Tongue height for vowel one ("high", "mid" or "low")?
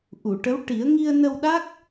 high